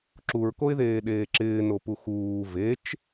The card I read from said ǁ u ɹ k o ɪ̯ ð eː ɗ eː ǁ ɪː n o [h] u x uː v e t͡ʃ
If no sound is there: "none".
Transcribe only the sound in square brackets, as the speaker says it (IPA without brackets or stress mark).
p